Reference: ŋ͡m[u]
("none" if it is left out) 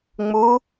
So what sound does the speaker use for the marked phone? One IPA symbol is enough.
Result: u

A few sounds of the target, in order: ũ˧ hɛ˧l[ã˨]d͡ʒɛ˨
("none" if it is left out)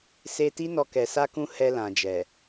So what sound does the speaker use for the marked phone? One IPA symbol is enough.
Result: ã˨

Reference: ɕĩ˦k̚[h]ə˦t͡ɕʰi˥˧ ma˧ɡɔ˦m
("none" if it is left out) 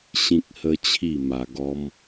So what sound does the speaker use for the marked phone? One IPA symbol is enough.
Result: h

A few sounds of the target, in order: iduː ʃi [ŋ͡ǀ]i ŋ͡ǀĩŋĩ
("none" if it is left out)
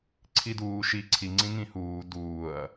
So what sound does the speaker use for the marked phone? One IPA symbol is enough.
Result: ǀʰ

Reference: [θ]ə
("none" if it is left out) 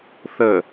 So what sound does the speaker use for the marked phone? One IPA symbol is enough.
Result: θ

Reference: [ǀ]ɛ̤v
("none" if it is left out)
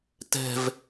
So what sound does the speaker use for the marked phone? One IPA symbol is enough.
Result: t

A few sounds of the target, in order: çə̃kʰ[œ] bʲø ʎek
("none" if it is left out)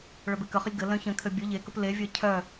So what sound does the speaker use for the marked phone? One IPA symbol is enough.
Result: ø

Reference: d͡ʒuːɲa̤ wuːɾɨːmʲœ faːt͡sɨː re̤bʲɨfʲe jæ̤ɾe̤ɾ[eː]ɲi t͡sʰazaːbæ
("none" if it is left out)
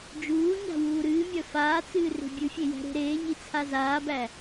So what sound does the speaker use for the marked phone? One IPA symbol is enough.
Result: eː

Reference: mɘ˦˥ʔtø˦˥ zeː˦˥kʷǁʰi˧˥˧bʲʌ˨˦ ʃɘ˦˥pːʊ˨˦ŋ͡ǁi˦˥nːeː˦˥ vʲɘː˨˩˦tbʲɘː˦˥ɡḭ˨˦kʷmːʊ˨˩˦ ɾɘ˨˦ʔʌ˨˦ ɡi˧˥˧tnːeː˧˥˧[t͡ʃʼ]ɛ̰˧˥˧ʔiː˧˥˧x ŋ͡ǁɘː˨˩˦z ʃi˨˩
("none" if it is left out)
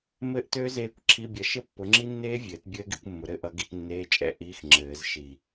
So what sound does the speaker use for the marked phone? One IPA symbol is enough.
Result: t͡ʃʼ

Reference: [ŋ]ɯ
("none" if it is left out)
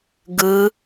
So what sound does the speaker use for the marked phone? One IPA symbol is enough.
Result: ɡ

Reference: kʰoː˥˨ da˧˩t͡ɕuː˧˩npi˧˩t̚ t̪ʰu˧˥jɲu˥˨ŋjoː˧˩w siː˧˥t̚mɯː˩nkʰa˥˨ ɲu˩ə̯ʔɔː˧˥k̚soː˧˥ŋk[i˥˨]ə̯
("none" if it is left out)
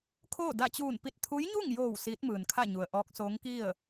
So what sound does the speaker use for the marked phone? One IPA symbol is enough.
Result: i˥˨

